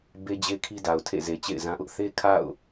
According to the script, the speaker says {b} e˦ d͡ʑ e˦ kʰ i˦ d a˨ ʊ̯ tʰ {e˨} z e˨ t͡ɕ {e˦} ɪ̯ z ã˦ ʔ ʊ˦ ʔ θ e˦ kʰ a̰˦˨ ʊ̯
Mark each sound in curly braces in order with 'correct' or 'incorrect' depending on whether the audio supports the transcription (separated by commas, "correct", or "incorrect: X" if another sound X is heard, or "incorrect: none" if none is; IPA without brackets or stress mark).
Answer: correct, incorrect: ḛ˦˨, incorrect: ḛ˦˨